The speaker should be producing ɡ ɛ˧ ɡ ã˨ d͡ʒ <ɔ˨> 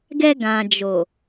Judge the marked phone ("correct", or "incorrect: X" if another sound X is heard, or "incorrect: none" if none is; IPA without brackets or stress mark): incorrect: o˨